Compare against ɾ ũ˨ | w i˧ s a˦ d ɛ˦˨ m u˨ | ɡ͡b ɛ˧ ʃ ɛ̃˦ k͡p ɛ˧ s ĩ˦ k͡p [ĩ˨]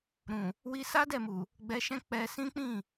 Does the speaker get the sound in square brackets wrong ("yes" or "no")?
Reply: yes